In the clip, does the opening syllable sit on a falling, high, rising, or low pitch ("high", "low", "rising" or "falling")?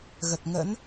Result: low